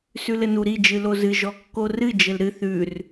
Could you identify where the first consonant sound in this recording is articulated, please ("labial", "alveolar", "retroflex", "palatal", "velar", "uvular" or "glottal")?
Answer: alveolar